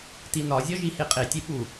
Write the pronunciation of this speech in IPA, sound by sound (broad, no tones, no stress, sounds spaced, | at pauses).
t i n ɒ zʲ ɒ ʒ i h e qʼ e tʲ e ɓ u